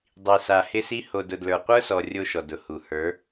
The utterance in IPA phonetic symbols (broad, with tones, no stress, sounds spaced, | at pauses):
dˤ i˨ s a˨ h ɪ˦ s i˦ h o˨ d ʊ˨ d l ə˞˨ qʷ ə˞˦ s ɔ˨ rʲ o˦ ʃ ɔ˨ d ʊ˨ h u˨ h ə˞˨˦